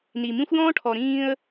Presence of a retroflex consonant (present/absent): present